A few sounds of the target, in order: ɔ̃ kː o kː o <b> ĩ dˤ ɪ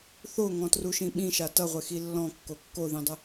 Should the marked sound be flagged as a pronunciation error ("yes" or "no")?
yes